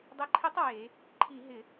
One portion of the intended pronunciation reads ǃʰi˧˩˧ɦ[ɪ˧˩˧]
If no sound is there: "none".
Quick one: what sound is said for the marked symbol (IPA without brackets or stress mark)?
ɪ˧˩˧